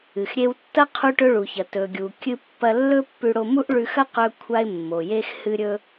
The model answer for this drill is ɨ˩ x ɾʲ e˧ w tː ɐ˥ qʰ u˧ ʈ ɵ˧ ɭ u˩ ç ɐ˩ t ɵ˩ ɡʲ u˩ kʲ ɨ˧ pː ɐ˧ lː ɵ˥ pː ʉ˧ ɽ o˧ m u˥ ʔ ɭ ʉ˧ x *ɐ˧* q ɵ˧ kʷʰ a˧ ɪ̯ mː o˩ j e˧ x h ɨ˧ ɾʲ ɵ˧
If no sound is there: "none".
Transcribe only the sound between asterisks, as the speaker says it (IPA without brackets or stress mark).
ɐ˥